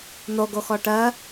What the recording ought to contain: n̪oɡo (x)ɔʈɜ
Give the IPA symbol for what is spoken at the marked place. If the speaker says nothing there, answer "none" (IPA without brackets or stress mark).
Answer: x